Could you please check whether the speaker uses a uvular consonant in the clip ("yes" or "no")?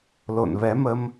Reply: no